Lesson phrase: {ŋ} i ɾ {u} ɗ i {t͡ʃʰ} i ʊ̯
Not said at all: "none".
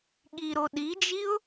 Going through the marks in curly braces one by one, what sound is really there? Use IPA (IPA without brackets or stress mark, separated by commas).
ɠ, o, d͡ʒ